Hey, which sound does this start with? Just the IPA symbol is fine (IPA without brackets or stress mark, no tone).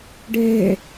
ɖ